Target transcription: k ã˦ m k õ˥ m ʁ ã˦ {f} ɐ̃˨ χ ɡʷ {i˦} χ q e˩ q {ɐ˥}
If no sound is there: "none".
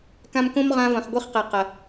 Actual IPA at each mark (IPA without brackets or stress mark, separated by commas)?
v, i˦, ɐ˩